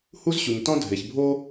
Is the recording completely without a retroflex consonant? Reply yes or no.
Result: yes